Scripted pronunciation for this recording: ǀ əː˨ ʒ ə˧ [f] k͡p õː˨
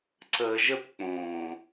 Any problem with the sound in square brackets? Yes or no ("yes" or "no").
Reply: yes